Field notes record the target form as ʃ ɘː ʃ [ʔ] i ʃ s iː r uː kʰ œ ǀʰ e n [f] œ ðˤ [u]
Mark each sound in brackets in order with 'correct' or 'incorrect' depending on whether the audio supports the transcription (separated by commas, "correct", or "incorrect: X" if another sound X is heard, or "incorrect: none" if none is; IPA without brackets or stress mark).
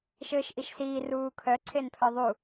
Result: correct, incorrect: pʰ, correct